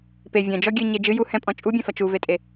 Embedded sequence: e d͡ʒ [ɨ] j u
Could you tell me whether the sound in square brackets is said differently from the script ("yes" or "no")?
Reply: no